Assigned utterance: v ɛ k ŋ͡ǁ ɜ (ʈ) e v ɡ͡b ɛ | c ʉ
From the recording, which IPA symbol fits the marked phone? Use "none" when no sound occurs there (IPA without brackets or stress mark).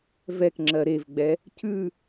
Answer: ɾ